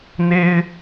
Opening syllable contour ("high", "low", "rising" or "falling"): high